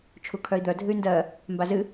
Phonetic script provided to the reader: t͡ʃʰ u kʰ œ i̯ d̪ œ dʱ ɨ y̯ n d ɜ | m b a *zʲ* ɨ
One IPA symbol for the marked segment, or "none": z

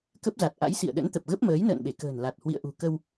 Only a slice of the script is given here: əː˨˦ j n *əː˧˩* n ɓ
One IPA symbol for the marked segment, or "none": ə̰ː˧˨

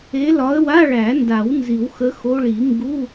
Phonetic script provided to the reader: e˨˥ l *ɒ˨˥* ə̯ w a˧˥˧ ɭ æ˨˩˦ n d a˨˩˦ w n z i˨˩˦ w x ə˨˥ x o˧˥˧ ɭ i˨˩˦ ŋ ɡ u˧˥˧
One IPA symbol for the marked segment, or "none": ɒ˨˥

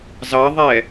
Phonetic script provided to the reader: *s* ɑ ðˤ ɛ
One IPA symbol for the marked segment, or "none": z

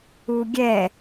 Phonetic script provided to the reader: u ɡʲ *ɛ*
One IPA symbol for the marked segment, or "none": ɛ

